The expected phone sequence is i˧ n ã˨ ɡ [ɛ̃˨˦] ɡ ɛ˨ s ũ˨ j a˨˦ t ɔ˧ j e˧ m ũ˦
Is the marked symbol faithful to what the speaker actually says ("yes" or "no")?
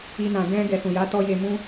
no